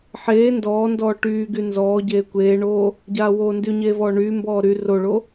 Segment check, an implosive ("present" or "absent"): absent